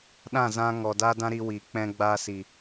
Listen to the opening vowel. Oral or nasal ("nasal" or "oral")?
nasal